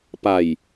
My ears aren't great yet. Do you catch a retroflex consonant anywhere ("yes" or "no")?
no